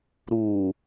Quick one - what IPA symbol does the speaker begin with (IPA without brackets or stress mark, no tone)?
ɾ